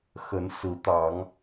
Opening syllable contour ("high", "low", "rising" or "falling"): rising